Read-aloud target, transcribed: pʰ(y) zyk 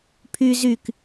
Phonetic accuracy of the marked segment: correct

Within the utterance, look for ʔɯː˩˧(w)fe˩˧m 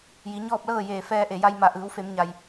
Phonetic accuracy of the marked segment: correct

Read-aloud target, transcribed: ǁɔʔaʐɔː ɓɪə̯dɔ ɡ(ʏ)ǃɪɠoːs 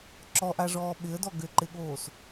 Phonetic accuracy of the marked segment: correct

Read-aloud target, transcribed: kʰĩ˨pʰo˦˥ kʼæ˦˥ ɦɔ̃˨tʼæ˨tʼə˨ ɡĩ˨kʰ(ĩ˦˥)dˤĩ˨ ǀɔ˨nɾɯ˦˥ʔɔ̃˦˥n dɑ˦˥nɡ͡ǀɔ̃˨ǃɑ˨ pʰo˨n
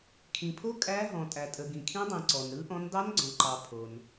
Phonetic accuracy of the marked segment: correct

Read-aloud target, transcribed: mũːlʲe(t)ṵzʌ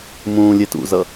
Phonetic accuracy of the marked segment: correct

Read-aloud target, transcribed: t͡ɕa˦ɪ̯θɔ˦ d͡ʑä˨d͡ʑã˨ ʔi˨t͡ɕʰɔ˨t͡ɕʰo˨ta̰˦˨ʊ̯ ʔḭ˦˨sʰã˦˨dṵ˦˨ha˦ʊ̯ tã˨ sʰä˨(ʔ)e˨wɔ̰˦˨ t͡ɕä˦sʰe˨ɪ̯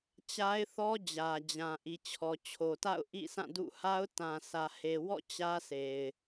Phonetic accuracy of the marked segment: incorrect: h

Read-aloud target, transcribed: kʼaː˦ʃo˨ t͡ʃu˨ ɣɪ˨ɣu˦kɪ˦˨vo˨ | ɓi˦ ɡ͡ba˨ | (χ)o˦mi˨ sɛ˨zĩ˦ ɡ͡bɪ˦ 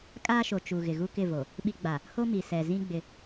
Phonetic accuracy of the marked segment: incorrect: h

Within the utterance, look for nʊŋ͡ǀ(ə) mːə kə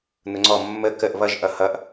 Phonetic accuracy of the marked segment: incorrect: ɔ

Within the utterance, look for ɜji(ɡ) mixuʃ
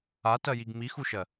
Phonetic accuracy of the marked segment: correct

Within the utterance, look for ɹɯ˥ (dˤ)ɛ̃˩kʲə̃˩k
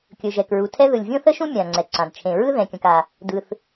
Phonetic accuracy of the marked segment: incorrect: ð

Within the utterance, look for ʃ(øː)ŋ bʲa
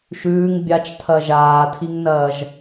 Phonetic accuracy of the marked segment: incorrect: ʉː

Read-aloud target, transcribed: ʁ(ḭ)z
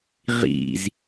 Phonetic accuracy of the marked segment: correct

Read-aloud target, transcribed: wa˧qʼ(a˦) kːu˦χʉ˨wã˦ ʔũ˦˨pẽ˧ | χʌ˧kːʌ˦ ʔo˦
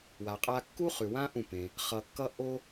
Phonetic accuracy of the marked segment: correct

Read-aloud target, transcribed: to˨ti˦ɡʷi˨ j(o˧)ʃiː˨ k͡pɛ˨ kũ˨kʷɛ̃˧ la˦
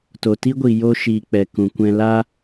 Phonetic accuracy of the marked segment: correct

